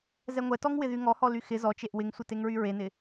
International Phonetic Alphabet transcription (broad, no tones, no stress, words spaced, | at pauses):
zɛŋʷɛtɔŋ wɪðyŋɔhɔ lyxɪ zɔt͡ʃeʔ wɪŋsʷeteŋɹy ɹenɪ